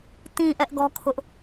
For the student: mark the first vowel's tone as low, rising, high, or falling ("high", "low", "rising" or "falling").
low